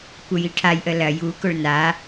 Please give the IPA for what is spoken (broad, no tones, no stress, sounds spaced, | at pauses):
kʷ œ j i ʈʰ a j ʔ ə l ɐ j u k ʊ ɭ n a